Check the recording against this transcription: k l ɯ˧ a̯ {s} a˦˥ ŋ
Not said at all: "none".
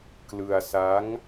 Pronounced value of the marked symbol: s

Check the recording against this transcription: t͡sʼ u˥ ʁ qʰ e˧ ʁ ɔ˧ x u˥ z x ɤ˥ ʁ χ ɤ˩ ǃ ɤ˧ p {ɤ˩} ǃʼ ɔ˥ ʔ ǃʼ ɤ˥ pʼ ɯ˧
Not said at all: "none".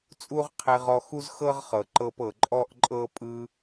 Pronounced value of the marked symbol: ɤ˩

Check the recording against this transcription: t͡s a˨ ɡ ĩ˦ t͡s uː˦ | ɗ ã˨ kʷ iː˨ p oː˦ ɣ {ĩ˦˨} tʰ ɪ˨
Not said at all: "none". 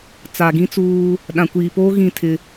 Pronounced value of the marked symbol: ĩ˦˨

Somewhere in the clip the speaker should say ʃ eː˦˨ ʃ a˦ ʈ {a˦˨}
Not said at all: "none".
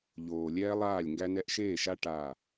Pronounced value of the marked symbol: a˦˨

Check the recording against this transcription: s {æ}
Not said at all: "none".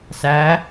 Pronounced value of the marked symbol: æ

